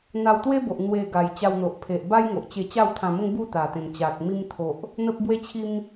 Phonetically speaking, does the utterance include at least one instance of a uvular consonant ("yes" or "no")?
no